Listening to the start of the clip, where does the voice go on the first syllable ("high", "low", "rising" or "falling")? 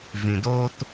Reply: low